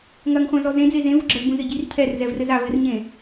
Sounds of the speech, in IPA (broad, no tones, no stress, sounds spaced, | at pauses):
ŋ ɐ ŋ χʷ ã z ɔ z ẽ d͡z e z ẽ v u ɡ͡ǁ ɐ z b ũ z ɘ ɟ i r cʰ ɛ r z ɛ v r ɘ z a v ɘ r ɲ ẽ